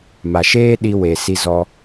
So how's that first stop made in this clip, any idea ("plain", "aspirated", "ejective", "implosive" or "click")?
implosive